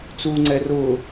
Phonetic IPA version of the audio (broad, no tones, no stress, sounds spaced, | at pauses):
t͡s uː ŋ͡ǀ ɛ r ʊː